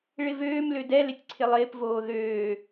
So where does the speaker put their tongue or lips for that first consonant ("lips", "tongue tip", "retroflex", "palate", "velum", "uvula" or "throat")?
retroflex